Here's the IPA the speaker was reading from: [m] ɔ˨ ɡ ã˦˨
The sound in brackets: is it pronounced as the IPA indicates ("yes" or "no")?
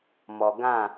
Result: yes